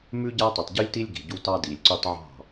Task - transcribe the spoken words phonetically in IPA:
m ʉ˦ ɟ a˦ tˤ y˨ tˤ ɟ ʉ˦ lʲ t i˦ lʲ ɡ i̤˨ ɟ u˦ t ɑ˦ d i˨ lʲ ǀ y˦ tˤ ʕ ɑ̤˦˨

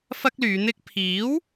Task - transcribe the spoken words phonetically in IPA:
f ɐ˥ k̚ l yː˨˧ n̪ ɪ˥ k̚ pʰ iː˨˥ w

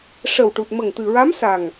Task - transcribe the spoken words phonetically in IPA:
ʂ ə˨˩ w ʈ u˨˩ t̚ m ə˨˩ ŋ t̪ ɨ˨˩ ɹ a˧˥ m s a˨˩ ŋ

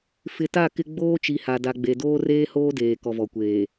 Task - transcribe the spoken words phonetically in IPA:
f ɪ˨ t a˦˨ k ɪ˦ ɡ͡b oː˦ t͡ʃ i˨ h a˨ d a˨ ɡ͡b e˨ d oː˦ r eː˦ h oː˦ d eː˨ k ɔ˨ v ɔ˨ kʷ eː˨

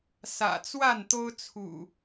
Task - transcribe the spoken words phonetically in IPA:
s ä̰˨˩ t͡s w a˥˨ n t̪ o˦ ʊ̯ t͡sʰ ṵ˨˩

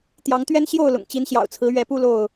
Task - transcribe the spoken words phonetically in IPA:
t̪ j ɑ˨˦ ŋ t̪ ɥ ɛ˦ n ɕ j o˥˨ ʊ̯ l ʊ̰˨˩ ŋ t͡ɕ i˨˦ n ɕ j ɑ̰˨˩ ʊ̯ t͡sʰ ɹ̩˨˦ ɥ ɛ˨˦ p u˦ l o˥˨ ʊ̯

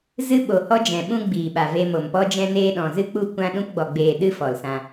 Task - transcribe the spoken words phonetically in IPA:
z ɨ˧ ɓ o˨ h ɔ˦ d͡ʒ ɛ̃˨ ɓ ũ˦ ɡ͡b iː˨ ɓ a˨ v e˧ m o˨ m p ɔ˧ d͡ʒ ɛ̃˧ n eː˧ ɗ ɔ̃˨ z ɨ˦ k͡p u˦˨ kʷ ã˦ ɗ ũ˧ p ɡ͡b ɔ˨ ɡ͡b eː˨ ɗ ɨ˦ f ɔ˨ l s ã˧

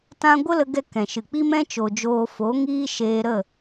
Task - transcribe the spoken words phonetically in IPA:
t ã˦ ɡʷ ə˦ l ə˧ ɡ ɛ˧ k ɛ̃˨ ʃ ɨ˨ k͡p i˦ m ɛ̃˦ t͡ʃ o˨ d͡ʒ oː˧ f o˨˦ ŋ iː˦ ʃ eː˧ ɾ ə˦˨

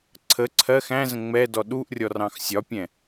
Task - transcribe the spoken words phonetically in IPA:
ǀʰ ə ǀʰ ɜ x æ̃ z ə̃ ŋ͡m ɛ d ɔ ɗ u ʔ rʲ ɔ r ɑ̃ x sʲ ɒ pʲ ɛ̃

